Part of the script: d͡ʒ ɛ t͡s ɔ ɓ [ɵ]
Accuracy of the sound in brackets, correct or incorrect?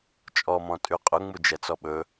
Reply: correct